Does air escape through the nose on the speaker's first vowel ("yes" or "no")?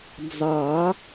no